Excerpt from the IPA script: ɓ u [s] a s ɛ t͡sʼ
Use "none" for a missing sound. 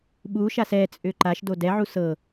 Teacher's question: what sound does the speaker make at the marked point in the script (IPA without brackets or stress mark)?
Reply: ʃ